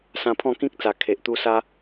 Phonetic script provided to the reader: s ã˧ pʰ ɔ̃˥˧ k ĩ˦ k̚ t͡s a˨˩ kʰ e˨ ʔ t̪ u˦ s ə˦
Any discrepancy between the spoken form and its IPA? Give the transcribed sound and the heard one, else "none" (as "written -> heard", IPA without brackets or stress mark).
ə˦ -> a˦